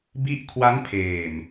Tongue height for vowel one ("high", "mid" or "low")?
high